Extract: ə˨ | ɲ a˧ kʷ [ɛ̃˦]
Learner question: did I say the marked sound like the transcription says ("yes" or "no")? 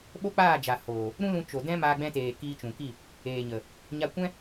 yes